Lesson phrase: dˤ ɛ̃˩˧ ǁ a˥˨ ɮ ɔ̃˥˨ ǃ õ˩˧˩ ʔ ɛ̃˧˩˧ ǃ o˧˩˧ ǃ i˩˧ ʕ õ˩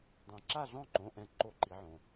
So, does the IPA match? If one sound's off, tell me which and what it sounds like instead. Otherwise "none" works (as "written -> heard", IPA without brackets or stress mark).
none